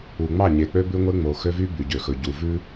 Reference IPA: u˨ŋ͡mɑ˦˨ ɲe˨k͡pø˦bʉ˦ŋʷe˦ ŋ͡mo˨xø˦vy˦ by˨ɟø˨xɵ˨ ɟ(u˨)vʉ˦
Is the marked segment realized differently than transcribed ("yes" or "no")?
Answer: no